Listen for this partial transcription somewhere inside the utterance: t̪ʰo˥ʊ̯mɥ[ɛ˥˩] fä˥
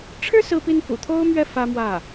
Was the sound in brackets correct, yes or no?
yes